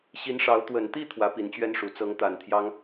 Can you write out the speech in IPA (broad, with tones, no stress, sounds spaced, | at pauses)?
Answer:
ɕ i˧˥ n ʂ ɑ˧˥ ʊ̯ t̪ w ə˨˩ n t̪ i˥˩ t̪ʰ w ä˧˥ p i˨˩ n t͡ɕ ɥ ɛ˥ n ʂ u˨˩ t͡s ɤ˧˥ ŋ t̪ a˨˩ n t̪ʰ j ɑ˥ ŋ